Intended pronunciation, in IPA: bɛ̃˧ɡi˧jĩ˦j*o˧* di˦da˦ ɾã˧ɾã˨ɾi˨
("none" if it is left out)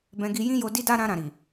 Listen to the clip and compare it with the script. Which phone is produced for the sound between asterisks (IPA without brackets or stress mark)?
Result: o˧